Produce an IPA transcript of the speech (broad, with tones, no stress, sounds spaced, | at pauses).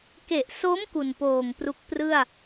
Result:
k e˨˩ ʔ s o˦˥ m k u˨˩ n p oː˨˩ ŋ p r u˦˥ k̚ p r ɯ˥˩ a̯